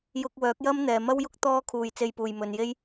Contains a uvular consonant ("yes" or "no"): no